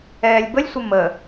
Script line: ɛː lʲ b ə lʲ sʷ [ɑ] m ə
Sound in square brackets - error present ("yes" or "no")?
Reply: yes